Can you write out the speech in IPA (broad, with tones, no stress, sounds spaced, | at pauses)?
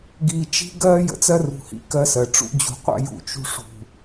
ɡ iː˨ t͡ʃ i̤˦ ɡ ɜː˦ j ə̰˨ t͡s ɜ˦ r ṳ˨ h ḭ˨ k ɜ˦ s ɜ˨ ʈ͡ʂ ṵ˦ d͡ʑ ṳ˨ qʷ a̰˦ j ṵ˨ t͡ʃ ṳ˦ ʂ ṳ˨